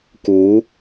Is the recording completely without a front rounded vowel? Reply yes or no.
yes